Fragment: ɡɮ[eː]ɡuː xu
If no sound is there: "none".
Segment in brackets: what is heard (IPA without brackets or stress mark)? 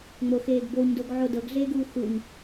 eː